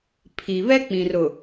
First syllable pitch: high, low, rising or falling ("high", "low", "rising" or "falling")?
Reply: low